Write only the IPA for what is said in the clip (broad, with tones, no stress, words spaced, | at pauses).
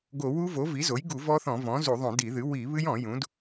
ɡo˧˩˧ wu˦˥vo˩˥ vi˩˥zo˩˥j ɡu˧˩˧ vɔ˦˥θɔ̃˧˩˧vɔ̃˩˥zu˧˩˧ ðˤõ˧˩˧di˧˩˧ðɨ˩˥ wi˧˩˧βɨ˦˥jɔ̃˧˩˧ jũ˩˥d